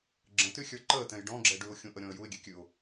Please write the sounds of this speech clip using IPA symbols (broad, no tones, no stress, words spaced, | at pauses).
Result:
ɡ͡ǁə̃tyxʲə˞ ǃəːtɛ̃j ɖɔ̃ɡ͡ǁɛ ɖʉʊ̯xʲũʔəɾʲɔ̃ə̯ juɪ̯ɡʲɛkʲʉʊ̯